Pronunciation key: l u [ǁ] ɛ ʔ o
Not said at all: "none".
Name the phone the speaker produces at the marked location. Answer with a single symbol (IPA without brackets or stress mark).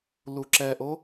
ǁ